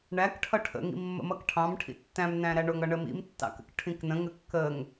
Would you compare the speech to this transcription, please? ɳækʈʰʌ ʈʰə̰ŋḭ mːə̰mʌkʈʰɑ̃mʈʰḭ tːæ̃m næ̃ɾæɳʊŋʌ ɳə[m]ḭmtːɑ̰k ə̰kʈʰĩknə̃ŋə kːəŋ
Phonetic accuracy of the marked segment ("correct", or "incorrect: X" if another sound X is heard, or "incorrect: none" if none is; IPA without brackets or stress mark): correct